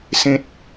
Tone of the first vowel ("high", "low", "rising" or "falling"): high